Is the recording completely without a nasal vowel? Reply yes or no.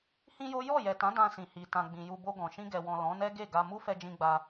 no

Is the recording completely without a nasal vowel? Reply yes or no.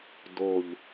yes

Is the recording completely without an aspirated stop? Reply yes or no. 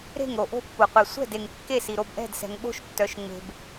yes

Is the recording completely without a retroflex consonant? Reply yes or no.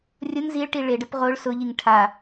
no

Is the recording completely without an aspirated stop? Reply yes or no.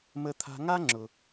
no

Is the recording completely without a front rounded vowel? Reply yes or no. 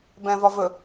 yes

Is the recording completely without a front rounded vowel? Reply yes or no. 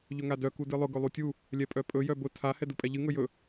no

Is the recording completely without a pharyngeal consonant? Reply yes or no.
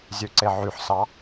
no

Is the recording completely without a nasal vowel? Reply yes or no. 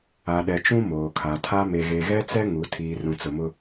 no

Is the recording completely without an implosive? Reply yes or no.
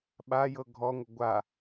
no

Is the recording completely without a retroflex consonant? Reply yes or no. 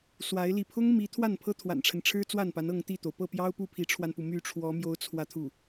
no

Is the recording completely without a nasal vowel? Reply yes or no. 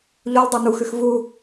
yes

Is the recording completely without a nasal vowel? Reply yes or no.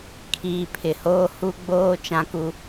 no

